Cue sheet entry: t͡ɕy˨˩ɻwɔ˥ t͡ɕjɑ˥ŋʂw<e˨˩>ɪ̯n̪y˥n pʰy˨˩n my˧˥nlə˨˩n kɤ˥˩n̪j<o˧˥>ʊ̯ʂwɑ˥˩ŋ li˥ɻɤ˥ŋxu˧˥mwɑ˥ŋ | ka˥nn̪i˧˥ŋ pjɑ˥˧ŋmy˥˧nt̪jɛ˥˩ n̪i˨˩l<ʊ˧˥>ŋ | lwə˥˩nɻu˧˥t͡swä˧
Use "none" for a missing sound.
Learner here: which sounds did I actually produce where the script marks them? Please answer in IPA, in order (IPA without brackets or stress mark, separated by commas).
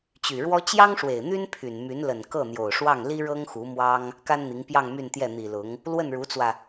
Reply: e˨˩, o˨˩, ʊ˧˥